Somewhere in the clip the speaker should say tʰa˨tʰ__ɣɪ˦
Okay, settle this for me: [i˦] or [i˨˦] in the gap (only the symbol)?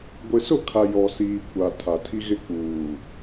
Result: i˦